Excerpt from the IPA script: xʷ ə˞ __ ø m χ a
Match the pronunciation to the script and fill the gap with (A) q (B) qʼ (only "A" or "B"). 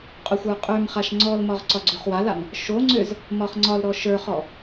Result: B